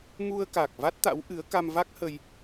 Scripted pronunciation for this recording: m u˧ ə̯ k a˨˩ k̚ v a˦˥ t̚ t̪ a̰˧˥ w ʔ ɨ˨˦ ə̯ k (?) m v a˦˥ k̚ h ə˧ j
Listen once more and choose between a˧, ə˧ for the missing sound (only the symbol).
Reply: a˧